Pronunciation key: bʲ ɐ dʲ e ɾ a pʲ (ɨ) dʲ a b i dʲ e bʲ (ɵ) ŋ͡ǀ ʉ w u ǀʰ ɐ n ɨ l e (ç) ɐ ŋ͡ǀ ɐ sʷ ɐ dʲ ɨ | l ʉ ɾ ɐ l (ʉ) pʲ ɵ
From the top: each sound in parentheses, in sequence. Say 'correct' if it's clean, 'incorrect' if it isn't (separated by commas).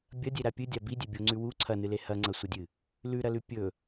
correct, incorrect, incorrect, correct